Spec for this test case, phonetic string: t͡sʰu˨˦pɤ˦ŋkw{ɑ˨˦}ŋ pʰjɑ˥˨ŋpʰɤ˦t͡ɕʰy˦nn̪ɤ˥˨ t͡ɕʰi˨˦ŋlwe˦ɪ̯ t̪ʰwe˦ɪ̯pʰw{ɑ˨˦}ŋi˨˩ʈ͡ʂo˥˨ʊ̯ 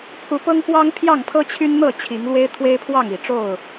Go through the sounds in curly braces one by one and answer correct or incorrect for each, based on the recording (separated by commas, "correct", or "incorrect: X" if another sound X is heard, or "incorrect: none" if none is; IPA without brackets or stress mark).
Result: incorrect: ɑ˦, incorrect: ɑ˥˨